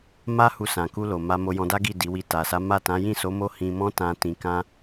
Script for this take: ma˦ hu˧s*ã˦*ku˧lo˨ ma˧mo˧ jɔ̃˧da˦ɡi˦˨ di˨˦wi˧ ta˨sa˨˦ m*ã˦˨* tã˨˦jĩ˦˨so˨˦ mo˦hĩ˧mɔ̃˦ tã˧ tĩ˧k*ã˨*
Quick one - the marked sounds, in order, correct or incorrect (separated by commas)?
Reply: incorrect, incorrect, incorrect